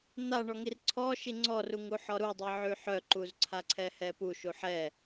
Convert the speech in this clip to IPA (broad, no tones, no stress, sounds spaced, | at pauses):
n̪ a ɳ ɔ ŋ i r ǀʰ ɔ ʃ i ŋ͡ǀ ɔ r u ŋ u ħ ɔ ɾ u dˤ i ʕ y ħ œ ǃ u z ǀʰ a ǀʰ ɛ h ɛ p u ʃ u ħ ɛ